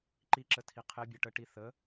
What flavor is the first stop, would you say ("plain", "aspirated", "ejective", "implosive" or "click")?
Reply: click